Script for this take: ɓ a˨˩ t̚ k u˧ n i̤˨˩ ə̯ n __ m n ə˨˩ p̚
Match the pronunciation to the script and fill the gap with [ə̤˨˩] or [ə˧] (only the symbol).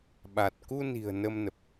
ə˧